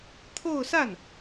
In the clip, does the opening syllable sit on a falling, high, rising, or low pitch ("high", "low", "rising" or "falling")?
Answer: falling